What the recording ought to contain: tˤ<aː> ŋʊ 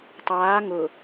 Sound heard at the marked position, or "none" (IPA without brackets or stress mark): aː